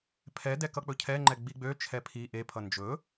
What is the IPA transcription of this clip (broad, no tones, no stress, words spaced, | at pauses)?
pʰɛ dɛkʌk͡pɵcʰɛ ŋ͡ǃɛɡ͡biɡ͡bø t͡ʃʰɛpʰi ʔe pʰʌnd͡ʒɵ